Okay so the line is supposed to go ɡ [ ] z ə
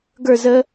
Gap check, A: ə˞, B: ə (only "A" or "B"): A